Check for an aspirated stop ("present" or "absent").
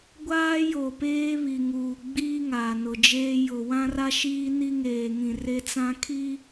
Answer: present